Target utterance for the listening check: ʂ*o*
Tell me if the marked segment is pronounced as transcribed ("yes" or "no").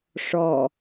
no